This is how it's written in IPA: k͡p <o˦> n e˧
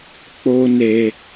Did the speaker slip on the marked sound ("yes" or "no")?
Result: no